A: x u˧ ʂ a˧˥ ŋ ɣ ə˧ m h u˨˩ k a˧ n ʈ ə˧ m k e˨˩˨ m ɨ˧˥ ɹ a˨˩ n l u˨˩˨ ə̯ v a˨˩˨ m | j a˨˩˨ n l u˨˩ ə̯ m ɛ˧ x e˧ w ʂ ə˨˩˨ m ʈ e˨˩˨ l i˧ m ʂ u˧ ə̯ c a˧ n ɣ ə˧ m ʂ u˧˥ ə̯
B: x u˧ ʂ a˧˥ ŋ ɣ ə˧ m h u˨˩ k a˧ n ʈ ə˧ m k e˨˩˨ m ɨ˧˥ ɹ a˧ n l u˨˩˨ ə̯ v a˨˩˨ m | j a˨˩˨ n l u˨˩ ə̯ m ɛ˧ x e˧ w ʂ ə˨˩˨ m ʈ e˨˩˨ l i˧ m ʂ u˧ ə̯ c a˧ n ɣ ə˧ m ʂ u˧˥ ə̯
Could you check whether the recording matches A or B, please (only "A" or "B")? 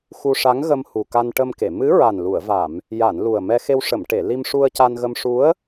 A